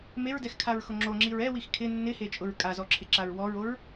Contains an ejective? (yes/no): yes